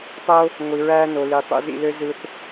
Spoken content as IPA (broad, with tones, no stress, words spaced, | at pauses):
tˤo˧ | ŋʷi˨ɹæː˧no˨ li˨ tˤṵ˧zḭ˧lø˦ zɯ˧θ